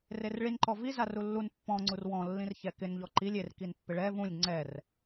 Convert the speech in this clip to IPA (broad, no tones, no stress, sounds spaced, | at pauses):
r e r ɭ i n ǃ ɔ v i z a r u lː u n pː ɔ̃ ŋ͡ǀ u r w ɔ̃ lː ĩ r ç ɛ k ɪ n ʎ ɔ ǃ i lʲ e r k i n pː ɪ ɭ ɛ v ũ lʲ ŋ͡ǀ ɛ r